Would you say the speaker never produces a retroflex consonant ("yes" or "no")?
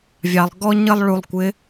no